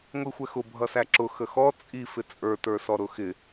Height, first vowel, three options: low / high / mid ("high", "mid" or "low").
high